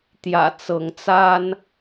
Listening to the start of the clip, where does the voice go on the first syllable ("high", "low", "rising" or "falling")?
low